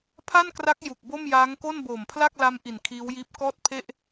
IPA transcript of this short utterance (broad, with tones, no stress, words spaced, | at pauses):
pʰa˥˩nkra˦˥k̚ ju˨˩k̚bo˥˩mjaː˦˥ŋ ko˥˩nboː˨˩mpʰla˥˩k̚la˦˥m ʔi˨˩nkʰiː˦˥wjiː˦˥p̚ kɔː˥˩t̚pʰe˥˩ʔ